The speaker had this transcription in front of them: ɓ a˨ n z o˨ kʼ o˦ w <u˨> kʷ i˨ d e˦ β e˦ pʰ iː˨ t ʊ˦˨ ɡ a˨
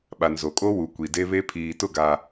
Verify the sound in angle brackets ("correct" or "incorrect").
correct